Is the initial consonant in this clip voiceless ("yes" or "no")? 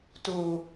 yes